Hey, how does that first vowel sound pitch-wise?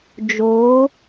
rising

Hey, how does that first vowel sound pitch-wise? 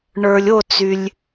low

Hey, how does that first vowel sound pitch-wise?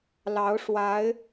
rising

